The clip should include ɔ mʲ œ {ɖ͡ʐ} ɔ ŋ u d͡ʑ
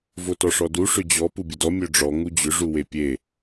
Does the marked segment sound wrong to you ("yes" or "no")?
no